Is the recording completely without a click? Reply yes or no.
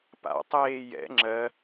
no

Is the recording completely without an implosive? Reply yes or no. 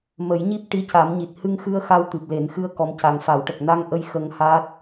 yes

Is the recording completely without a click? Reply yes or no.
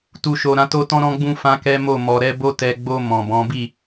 yes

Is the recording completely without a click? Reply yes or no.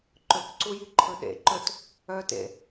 no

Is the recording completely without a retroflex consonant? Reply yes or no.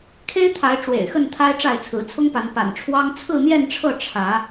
no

